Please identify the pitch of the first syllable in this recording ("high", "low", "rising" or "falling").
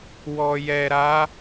low